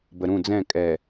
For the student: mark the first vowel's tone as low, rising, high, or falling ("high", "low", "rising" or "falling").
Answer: low